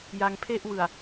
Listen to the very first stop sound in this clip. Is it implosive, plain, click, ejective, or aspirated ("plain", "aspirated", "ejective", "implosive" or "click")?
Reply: aspirated